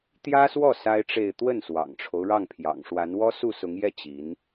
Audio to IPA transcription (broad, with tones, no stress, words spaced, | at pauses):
t̪jä˥swɔ˥˩ sa˥ɪ̯ʈ͡ʂe˥˧ɪ̯ t̪wə˥˩nswɑ̰˨˩ŋʈ͡ʂʰo˦ʊ̯ ɻɑ˥˩ŋpʰjɑ̰˨˩ŋʂwa˧˥n wɔ˥ su˥˩sʊ˧˥ŋjɛ˥˩ t͡ɕi˧˥n